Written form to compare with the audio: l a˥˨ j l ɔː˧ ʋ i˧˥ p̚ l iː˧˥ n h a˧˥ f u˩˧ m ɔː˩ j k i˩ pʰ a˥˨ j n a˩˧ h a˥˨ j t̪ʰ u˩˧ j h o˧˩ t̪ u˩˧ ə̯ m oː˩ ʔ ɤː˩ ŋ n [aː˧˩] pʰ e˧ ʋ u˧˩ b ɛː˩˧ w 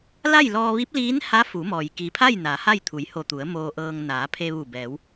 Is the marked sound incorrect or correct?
incorrect